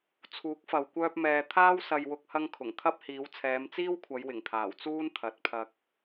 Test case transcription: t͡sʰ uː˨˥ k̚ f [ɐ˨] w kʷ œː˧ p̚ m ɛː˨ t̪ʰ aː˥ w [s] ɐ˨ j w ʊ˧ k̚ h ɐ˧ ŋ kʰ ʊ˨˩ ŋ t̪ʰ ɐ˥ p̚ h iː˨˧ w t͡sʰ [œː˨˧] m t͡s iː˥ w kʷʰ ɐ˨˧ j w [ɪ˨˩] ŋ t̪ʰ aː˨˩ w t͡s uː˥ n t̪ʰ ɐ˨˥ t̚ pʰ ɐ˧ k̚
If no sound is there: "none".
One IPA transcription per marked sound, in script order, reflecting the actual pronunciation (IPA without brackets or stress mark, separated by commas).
ɐ˨, s, ɛː˨˧, ɪ˨˩